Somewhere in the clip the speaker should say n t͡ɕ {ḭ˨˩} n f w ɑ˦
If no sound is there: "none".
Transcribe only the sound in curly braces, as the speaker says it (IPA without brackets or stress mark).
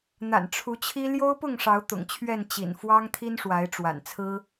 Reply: ḭ˨˩